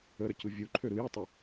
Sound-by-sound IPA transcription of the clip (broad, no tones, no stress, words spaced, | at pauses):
əɾəcɯ vʲuǃʰø ɾɯjɯtˤə